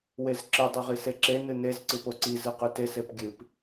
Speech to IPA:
wezǁɨ dˤʉʁiseǁe nɨnez ǀɨpoǀi zɨqʉtes epɡʲɨp

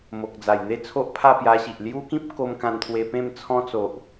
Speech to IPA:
mo˨k̚d͡za˨˩jn̪e˥˧ t͡sʰo˦ʔpʰa˥˧pja˧ɕi˨ʔ lju˦kĩ˦p̚ko˧m kã˧nt̪ʰwe˧pẽ˥˧m t͡sʰɔ̃˦t͡so˨ʔ

